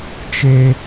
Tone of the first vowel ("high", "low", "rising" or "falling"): high